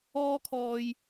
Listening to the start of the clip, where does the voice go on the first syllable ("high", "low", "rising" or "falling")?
high